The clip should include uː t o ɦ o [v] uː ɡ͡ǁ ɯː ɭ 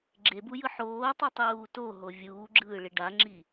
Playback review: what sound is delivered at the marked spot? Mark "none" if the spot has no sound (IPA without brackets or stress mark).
vʲ